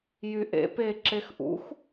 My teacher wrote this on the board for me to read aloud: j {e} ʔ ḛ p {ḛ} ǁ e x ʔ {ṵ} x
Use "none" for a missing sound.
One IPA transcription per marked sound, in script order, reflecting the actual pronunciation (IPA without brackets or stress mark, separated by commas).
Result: y, e, ṵ